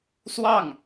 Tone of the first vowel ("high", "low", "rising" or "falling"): falling